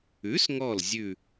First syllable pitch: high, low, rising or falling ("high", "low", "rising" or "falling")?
rising